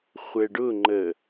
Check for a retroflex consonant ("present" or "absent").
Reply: present